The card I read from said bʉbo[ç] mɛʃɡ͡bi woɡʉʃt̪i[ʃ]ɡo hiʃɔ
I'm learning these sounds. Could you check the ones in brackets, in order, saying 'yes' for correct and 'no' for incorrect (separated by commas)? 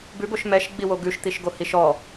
no, yes